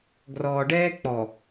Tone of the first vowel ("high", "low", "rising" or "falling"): low